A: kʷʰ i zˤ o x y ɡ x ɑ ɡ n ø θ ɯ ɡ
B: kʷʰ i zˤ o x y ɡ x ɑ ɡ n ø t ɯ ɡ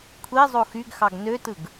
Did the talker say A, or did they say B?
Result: B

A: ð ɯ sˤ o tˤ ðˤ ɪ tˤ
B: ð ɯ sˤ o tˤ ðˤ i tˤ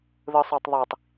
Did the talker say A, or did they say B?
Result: B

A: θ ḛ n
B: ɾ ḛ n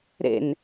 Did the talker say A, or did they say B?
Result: B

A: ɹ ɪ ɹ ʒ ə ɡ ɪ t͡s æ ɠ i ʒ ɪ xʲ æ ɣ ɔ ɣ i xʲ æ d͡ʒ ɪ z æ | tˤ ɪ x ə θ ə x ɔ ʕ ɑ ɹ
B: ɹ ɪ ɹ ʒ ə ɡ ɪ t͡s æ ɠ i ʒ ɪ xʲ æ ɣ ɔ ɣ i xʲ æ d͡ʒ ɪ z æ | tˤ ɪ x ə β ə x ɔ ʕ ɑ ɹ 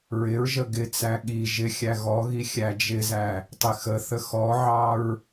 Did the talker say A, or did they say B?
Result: A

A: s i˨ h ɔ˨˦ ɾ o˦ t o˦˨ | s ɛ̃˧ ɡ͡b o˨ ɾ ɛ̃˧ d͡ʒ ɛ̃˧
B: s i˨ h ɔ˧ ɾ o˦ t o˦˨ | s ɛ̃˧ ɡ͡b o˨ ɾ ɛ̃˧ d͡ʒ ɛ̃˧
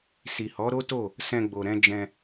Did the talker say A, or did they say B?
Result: A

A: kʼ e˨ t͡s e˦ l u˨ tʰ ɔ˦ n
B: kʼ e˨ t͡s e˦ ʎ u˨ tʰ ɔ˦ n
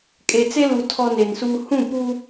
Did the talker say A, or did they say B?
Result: A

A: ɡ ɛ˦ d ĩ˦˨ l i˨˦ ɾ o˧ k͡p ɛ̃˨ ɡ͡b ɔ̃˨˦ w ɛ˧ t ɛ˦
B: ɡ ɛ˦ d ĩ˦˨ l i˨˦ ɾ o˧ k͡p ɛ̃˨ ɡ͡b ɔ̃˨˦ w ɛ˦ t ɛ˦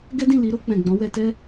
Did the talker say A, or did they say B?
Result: A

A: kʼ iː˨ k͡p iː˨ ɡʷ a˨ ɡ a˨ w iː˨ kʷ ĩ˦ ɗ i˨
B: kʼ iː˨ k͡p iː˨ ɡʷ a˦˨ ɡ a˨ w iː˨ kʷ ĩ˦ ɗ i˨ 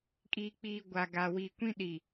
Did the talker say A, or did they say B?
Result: A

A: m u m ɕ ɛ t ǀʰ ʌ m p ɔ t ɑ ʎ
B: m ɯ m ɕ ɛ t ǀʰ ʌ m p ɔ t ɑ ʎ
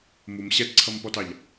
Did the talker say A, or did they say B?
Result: A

